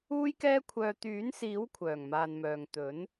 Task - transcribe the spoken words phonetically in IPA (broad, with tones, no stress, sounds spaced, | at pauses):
uː˥ j k ɛː˥ kʷʰ œː˧ t̪ yː˨˥ n s iː˨˥ w kʷʰ œː˨˩ ŋ m aː˨ n m œː˨ ŋ t̪ ɵ˨˥ n